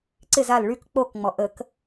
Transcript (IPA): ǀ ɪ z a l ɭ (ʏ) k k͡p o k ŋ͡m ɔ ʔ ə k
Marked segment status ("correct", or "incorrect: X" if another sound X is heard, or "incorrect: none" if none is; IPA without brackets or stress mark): incorrect: y